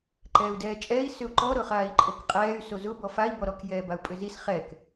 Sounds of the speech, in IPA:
ǃɛːu̯dɛːt͡ʃʼɛːi̯ sʏu̯ǃɔ ɾʊχaːi̯ǃʼokqʼɛːy̯ sozʊ bɔfai̯ bɔɾɔk jɛːbau̯pʼʏzis χɛk

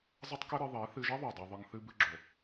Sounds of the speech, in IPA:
zˤɘ˦tˤkɘ˦ɾɨ˧ðˤe˨˦ θɨ˧ʒɛ˦ðˤu˨ dˤo˧ðˤɨ˧ŋ θɨ˧bɨ˧ɡ͡ǁo˨

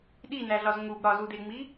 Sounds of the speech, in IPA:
ɗinæɮɒz ŋub ɾɒzudeŋ͡mi

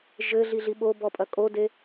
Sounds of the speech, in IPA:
ʒɘɮi ɮiɓobɔ pʼɐkʼode

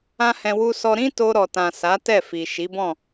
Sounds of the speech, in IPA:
ã˦hɛ̃˧ wu˧sɔ˧ ɾĩ˦to˧ɾɔ˨tã˨ sa˨˦tɛ˦˨fi˨ ʃi˨˦bɔ̃˦˨

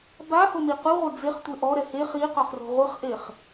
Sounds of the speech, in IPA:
bahomi quʁʷɐ d͡zeχtʷe ʔɔɾɛ he χiqɔχro̤ ʁʷɘχʔeχ

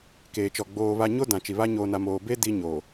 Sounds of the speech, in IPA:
keː˨t͡ʃɔ˨ ɡ͡boː˨ βa˨ɲo˦ dã˨t͡ʃi˨βa˦ ɲoː˨na˨moː˨ be˦ di˦ ɲoː˨

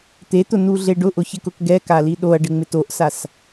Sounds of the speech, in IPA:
t̪et̪ʊnuɮe ɖʊʔʊçɪkʊk ɡɛkali ɗoɐ̯ɖɪŋ͡mɪt oʔsas

